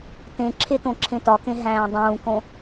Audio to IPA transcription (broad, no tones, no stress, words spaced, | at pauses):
tẽǁʰetõǁʰẽ tɒkẽɦæ̃ː dˤũːkõ